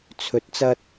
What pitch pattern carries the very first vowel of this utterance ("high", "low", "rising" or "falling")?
rising